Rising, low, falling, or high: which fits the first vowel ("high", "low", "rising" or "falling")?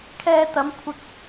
low